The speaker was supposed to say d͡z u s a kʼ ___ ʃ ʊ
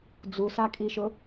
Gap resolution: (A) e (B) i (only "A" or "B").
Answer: B